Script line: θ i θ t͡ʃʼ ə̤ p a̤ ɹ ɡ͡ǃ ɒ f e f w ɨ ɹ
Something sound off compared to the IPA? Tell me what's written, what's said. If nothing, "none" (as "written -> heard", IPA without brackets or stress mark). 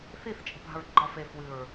none